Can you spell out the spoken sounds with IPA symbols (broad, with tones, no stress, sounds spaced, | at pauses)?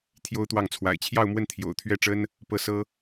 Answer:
t̪ʰ j o˥ ʊ̯ t̪ w ɑ˥˩ ŋ t͡sʰ w a̰˨˩ ɪ̯ t͡ɕʰ j ɑ˥˧ ʊ̯ m w ə˥˩ n t̪ʰ j o̰˨˩ ʊ̯ t̪ʰ ɥ ɛ˥˩ ʈ͡ʂ ə˥ n | p ɤ˥˩ s ɤ˥